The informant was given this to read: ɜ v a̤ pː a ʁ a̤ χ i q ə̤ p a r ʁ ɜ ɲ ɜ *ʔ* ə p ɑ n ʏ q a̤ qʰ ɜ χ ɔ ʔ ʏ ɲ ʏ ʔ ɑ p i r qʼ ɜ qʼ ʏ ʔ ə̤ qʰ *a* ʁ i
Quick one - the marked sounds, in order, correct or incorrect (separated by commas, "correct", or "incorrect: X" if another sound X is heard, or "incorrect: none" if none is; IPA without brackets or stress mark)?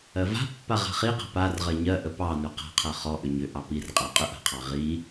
correct, incorrect: ɑ